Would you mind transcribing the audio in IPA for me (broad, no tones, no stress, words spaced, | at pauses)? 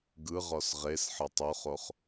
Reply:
ɡɯʁɔs ʁesħɤtˤ oχoχ